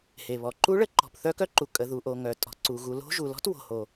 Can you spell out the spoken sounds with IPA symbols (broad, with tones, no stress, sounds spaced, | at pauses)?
h e˩ β ɔ˩ ǃ u˦˥ ɭ ə˦˥ ǃ ɔ̤˩ p θ œ˦˥ k œ˦˥ ǃ u˩ kʼ ə˩ ð u˩ ʔ o˩ ŋ œ˩ tʼ ɔ̤˩ ǀ u˩ ɣ u˩ l o̤˦˥ ʒ u˩ l ɔ̤˦˥ t w o̤˩ h o˩